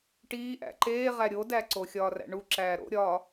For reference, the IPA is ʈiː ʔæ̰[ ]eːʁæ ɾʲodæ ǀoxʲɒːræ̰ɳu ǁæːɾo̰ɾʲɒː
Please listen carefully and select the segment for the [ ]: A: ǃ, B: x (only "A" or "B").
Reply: A